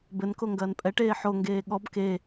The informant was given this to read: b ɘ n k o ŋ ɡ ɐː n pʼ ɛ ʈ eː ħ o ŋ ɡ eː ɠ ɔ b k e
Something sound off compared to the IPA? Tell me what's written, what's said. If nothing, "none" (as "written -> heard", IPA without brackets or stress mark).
none